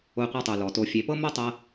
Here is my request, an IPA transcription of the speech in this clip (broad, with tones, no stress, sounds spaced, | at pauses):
o˧ qʷ a˧ tˤ u˨ l ɔ˨ t o˧ fʲ e˨ p ɤ˦ m o˦ tˤ ɤ˧